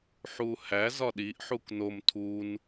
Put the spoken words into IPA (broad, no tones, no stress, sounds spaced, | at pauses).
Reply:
ħ u h æ z ɒ ɗ i ʔ ħ u k n o m tʰ u n